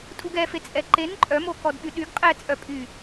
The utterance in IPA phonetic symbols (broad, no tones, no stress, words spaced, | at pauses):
tʼuɡɛfe t͡sʼɛǃen ǃʼœmo kɔdɓyɗyɡ qʼɛt͡sʼœpʼy